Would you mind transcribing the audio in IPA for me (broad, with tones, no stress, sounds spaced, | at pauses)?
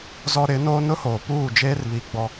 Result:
z ɔ˦ ɾ ɪ˨˦ n oː˦ n ʊ˦ h oː˨ p uː˦˨ d͡ʒ eː˦ r β i˨ ɡ͡b ɔ˦